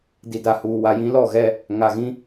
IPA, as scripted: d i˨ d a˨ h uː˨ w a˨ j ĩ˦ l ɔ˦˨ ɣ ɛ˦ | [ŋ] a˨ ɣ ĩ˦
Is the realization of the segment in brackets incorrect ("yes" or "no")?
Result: no